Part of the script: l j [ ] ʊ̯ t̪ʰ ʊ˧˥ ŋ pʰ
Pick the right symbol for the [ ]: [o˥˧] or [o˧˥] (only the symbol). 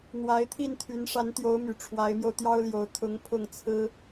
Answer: o˧˥